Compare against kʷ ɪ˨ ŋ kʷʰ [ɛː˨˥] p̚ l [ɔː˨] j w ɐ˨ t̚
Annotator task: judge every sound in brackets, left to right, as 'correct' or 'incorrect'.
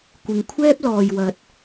incorrect: ɛː˥, correct

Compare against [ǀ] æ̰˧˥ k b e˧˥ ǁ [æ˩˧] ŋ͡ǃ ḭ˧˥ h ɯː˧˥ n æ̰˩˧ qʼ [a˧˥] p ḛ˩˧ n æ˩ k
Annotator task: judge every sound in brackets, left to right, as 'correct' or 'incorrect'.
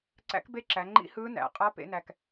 correct, correct, correct

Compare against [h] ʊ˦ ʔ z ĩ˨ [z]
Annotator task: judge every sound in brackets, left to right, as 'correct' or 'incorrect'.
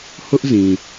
correct, incorrect: none

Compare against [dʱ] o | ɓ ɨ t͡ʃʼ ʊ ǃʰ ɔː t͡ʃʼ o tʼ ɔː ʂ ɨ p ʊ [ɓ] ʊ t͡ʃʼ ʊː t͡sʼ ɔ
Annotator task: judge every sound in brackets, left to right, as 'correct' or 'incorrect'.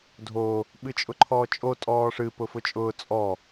correct, incorrect: f

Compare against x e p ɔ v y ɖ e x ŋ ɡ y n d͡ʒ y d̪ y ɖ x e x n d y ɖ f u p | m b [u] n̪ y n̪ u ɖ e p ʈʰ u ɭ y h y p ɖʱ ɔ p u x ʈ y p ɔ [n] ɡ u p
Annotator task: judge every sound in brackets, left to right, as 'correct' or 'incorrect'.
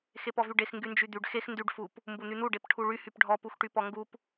correct, incorrect: ŋ

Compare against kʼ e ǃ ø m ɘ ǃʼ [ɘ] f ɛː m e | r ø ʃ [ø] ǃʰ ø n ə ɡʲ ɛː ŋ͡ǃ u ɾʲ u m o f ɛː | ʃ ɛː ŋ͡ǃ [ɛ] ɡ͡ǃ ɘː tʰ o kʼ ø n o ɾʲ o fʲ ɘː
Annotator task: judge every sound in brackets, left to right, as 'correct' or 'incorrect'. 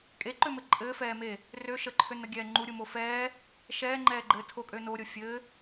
incorrect: ɘː, incorrect: ə, incorrect: ɛː

